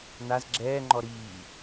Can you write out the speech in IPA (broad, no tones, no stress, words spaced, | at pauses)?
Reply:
naz ɡ͡ǁɛːŋ͡ǃɔ ɾiː